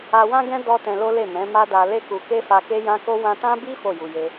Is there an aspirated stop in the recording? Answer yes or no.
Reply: no